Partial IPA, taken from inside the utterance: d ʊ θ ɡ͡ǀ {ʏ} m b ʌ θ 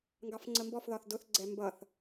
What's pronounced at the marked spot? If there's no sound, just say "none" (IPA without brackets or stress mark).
ɛ